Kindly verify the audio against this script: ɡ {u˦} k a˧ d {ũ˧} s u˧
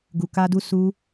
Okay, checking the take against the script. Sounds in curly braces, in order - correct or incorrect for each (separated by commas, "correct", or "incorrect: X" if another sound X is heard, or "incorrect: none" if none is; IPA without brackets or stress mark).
incorrect: u˨, incorrect: u˧